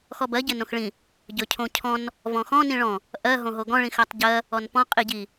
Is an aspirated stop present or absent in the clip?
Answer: present